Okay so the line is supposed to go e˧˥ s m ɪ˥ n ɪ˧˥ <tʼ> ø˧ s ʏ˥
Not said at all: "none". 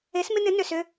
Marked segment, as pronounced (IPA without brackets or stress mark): n